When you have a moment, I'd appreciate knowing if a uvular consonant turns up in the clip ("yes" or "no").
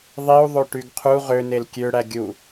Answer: yes